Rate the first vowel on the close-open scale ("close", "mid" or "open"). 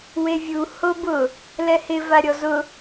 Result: mid